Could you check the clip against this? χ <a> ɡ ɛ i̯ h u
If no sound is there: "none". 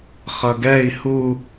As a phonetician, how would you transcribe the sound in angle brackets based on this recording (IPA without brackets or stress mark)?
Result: ʌ